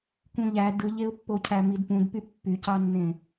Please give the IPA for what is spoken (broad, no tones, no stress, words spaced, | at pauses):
kũʎæ dɯʎeʊ̯pːocʰæ midpũdpy pːycɑnːẽ